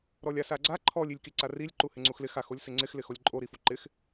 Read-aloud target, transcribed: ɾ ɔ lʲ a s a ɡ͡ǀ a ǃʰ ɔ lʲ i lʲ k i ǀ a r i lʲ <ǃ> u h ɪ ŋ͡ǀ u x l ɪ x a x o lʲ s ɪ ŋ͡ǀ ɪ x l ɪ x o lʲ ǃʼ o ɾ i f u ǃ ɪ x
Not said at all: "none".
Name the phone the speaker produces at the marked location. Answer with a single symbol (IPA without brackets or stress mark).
ǃ